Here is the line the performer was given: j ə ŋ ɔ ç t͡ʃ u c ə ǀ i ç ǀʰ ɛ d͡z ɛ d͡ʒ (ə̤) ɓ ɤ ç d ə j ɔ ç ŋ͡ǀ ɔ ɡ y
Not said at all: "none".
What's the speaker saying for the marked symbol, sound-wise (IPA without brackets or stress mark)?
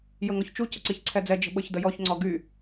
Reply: ə̤